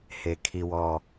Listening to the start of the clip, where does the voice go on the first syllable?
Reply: low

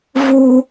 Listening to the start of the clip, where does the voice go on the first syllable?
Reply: high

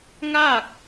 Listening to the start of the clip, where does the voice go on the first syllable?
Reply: falling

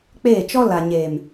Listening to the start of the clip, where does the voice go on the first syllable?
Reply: falling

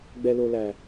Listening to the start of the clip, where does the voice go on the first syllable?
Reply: low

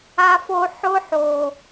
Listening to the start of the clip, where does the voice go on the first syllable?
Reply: high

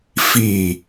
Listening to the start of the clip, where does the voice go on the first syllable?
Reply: falling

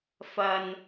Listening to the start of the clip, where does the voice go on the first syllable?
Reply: low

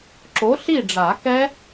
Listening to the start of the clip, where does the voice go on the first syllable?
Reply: rising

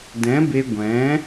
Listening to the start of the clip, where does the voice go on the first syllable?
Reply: rising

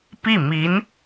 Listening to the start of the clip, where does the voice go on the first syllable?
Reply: falling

